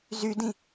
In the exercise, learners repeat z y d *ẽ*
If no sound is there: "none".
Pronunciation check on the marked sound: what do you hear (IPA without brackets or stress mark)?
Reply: ĩ